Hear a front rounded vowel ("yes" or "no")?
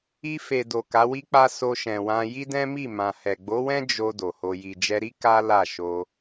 no